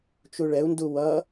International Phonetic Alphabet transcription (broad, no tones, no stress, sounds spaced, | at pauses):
t͡ʃ u ɭ ɛ u̯ n d u w ʌ